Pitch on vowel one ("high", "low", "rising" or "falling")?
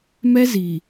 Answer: high